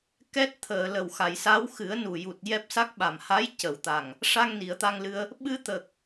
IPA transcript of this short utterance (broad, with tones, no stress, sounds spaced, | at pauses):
k ɛ˦˥ t̚ t̪ʰ əː˨˩˨ l ə˨˩ w x a˨˩˨ j s a˧˥ w x ɨ˨˩˦ ə̯ n u˨˩ j u˨˩ t̚ j ɛ˦˥ p̚ s a˦˥ k̚ ɓ a˨˩ m h a˧˥ j c ə˨˩˨ w t̪ a˨˩ ŋ | ʂ a˧ ŋ n i˨˩˨ ə̯ t̪ a˧ ŋ l ɨ˧ ə̯ | ɓ ɨ˧ t̪ ə˨˩ k̚